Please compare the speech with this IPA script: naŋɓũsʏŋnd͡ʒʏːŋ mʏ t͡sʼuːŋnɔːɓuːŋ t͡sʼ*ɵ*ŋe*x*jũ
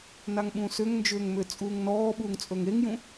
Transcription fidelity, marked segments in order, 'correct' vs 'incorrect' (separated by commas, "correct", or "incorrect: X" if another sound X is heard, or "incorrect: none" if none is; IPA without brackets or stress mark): correct, incorrect: ŋ